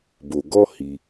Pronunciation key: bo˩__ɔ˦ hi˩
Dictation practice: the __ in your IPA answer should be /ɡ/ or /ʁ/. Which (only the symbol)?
ɡ